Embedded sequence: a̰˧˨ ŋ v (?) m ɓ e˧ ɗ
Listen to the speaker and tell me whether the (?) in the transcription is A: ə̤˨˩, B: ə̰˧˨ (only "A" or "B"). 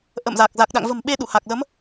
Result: A